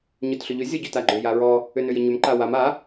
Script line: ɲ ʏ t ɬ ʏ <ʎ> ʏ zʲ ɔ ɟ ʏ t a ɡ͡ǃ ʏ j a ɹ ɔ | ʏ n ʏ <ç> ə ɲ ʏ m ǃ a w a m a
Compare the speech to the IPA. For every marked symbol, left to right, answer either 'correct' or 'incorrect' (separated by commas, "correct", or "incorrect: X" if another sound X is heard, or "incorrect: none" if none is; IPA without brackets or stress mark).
correct, incorrect: j